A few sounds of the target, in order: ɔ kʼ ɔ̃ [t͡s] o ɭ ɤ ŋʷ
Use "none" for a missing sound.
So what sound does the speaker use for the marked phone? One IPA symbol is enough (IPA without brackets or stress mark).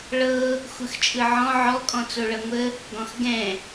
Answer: t͡s